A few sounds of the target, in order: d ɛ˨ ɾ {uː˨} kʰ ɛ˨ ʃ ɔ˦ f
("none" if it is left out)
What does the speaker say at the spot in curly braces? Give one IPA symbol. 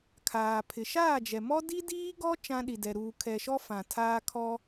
uː˨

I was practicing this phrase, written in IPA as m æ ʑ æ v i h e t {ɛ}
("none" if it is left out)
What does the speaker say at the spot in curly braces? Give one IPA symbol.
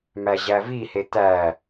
æ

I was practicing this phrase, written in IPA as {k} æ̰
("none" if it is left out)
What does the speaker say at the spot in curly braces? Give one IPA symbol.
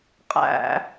qʼ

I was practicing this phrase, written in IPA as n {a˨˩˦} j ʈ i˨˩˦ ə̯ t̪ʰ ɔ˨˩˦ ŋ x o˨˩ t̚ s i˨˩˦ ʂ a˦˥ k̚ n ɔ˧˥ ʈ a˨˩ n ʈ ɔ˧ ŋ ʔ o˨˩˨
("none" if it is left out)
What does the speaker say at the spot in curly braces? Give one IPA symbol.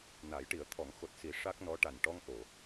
a˨˩˦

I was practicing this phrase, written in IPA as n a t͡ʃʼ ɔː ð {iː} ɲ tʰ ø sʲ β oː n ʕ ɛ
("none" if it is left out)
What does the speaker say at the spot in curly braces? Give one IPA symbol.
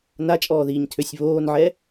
iː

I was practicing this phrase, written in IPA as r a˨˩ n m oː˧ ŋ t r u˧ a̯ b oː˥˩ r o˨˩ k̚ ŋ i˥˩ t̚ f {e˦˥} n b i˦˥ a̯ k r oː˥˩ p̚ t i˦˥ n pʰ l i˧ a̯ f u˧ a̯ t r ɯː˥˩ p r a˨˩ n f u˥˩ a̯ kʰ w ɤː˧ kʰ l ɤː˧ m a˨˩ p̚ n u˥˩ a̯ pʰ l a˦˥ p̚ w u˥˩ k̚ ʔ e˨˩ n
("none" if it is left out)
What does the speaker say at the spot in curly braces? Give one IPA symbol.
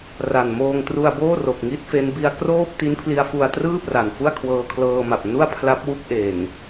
e˦˥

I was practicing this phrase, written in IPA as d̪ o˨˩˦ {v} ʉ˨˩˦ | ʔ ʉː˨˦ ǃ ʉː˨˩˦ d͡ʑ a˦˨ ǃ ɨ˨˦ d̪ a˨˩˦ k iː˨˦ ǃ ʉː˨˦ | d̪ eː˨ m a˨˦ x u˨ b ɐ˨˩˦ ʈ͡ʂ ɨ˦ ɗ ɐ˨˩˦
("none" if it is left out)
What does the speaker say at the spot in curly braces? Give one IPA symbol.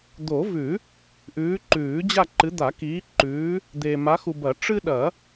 v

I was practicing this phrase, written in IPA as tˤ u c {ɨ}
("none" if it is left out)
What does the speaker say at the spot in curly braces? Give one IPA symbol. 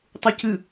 ɨ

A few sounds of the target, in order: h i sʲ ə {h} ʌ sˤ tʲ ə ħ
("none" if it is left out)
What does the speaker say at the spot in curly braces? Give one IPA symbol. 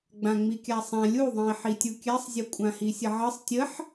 ʕ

